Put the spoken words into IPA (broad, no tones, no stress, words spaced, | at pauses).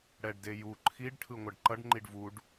ɽɛɖdeju ǃʰiɖ ʈʰɯŋʷʌɖǃʌɖ ŋ͡ǃiɖvuɖ